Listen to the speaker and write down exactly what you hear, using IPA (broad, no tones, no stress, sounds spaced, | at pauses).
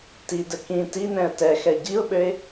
t i d ə k ĩ t i n ɛ̃ ə̯ t ɛ x ɛ ɟ i ʊ̯ ɓ ø ɪ̯